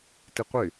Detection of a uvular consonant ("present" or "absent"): present